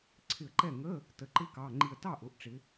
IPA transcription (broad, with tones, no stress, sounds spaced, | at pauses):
ǀʰ ɪ˧˩ ə̯ ǃ ɛ˥˩ ŋ ə˧˥˧ | t ə˩˧˩ ǃ ɪ˧˥˧ k ɑ˩˧˩ ŋ͡ǃ i˧˩ ə̯ t ɑ˥˩ ʔ ʊ˩˧ ʔ ʈ͡ʂ ɪ˩˧